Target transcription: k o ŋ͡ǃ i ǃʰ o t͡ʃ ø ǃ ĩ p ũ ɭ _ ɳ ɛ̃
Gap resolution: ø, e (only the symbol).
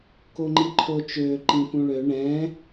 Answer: ø